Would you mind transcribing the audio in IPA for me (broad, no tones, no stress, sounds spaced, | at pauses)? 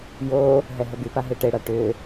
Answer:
j o | ɦ ɛ ɦ ə b y p a ɦ e ʈ e ɽ a ʈ ʏ